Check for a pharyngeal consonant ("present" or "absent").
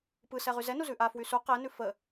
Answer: absent